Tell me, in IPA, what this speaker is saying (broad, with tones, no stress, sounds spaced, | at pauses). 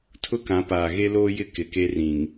tʰ ʊ˦ k ã˨˦ p aː˨ ɣ e˦ l oː˦ j ɪ˦ k ɪ˨ k e˦ r ĩ˨ ŋ